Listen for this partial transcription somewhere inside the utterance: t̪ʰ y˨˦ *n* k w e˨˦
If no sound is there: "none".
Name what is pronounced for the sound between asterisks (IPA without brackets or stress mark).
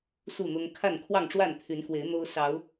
n